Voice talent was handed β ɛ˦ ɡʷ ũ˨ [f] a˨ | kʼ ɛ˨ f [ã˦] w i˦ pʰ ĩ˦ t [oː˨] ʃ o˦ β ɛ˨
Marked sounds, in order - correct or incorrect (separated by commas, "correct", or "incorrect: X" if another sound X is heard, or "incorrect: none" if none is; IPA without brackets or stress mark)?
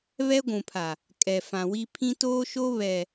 incorrect: pʰ, incorrect: ã˨, incorrect: oː˦